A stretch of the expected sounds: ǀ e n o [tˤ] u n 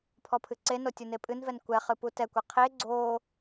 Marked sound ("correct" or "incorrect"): incorrect